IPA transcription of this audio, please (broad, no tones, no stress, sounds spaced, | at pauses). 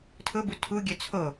tʰ ʊ b u tʰ u ɡʲ œ t͡sʰ o